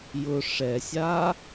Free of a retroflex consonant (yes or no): no